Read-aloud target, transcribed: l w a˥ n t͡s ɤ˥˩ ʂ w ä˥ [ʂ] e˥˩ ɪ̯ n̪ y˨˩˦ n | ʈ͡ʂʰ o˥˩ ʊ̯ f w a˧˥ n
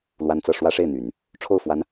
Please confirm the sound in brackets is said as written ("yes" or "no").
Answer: yes